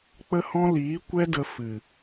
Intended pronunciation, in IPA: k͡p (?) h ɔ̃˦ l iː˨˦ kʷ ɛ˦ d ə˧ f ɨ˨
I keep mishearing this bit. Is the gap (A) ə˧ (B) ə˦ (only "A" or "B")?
B